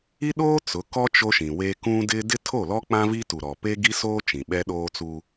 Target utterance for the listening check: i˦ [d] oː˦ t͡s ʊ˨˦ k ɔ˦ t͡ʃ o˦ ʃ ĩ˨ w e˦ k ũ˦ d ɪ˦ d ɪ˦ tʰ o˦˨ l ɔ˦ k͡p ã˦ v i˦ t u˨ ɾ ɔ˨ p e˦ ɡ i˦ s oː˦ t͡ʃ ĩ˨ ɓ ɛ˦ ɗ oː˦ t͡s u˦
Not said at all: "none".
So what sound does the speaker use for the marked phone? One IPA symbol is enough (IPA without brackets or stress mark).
ɗ